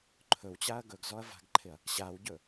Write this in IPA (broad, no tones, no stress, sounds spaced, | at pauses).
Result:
ǃʰ ɵ w t͡ɕ a ɐ̯ ɡ ɵ ɡ z ɔ ɐ̯ v a̤ ɡ ǃʰ ɪ ɐ̯ | ɕ a w ɟ ɵ